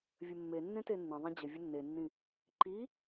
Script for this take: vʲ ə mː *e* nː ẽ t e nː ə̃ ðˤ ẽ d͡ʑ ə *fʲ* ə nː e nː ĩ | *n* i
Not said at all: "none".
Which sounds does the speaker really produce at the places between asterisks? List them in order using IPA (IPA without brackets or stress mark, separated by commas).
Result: e, vʲ, ǃ